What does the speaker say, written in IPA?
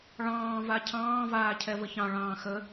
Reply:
ɭ ɑ̃ː v a cʰ ɑ̃ː v aː cʰ ɛ v ə ç ɑ̃ ɭ ɑ̃ː x ə

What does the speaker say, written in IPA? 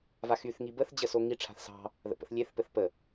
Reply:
v a x y θ ŋ i b ə θ d͡ʑ ə s o ŋ i ʈ͡ʂʰ a̤ θ s ɑ̤ | ð ə̰ p ə̰ θ lʲ e θ p ɘ θ p ə

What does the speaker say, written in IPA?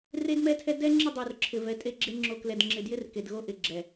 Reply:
r e˦ d m ɛ˦ tʰ ɛ˦ d ɛ˦ ŋ͡ǁ ɪ˦˨ dˤ o˨ r ǁʰ ɪ˨ v ɛ˨˦ tʼ e˦ ɡ͡ǁ e˦ ŋ͡ǁ o˨ k l ɛ˨ d ŋ͡ǁ ɪ˨ d j ɪ˦ r k e˨ d ɣ o˦ ʔ ɪ˨ ɡ͡ǁ ɛ˨

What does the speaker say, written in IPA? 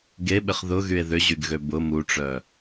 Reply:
ɡ e ɓ ɪ χ ð ʊ ɣ y e̯ ð ʏ ʑ y ɡ ɣ ø b ʊ m u ʈ͡ʂ œ

